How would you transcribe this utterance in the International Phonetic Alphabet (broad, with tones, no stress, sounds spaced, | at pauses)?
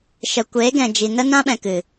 ʃ ə˨ kʷ eː˨˦ ɡ ɛ̃˨ d͡ʒ i˨ n ə˦ n ã˦ ɓ ɛ̃˨ k ɨ˨